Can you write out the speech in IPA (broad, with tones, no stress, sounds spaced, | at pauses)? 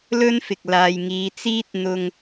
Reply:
l ɵ˥ n f ɪ˨ k̚ l aː˨ j ŋ iː˨ t͡s iː˥ t̚ n̪ ʊ˧ ŋ